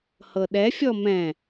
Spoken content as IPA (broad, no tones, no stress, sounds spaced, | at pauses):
h ɤ ɗ ɛ fʲ ɔ m ɛ̃